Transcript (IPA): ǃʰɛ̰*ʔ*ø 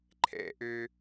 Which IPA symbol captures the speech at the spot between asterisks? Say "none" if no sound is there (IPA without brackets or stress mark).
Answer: ʔ